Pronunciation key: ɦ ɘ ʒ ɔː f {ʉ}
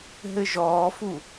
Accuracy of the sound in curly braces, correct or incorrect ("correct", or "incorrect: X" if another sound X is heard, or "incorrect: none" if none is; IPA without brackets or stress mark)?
incorrect: u